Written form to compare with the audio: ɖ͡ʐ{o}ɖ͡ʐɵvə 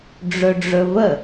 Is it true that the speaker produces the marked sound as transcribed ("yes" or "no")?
no